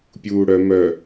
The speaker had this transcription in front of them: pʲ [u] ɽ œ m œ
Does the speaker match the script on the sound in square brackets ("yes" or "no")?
no